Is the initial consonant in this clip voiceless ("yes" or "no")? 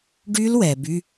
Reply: no